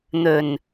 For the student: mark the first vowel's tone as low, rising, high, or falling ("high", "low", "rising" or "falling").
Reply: low